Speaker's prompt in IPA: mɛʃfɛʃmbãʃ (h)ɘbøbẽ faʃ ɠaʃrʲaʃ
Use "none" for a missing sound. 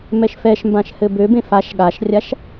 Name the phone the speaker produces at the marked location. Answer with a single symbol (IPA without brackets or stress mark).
h